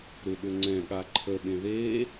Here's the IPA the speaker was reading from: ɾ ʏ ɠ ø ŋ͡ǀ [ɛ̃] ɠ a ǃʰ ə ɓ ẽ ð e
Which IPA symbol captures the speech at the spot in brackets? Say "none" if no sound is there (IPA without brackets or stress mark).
ɛ̃